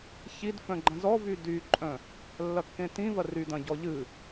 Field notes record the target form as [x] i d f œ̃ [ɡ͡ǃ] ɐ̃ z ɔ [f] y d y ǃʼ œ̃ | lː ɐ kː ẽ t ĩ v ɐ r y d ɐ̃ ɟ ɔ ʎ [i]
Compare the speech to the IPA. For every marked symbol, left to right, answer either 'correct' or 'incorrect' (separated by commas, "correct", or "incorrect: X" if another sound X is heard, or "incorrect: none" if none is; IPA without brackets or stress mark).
incorrect: ç, correct, incorrect: v, incorrect: ɨ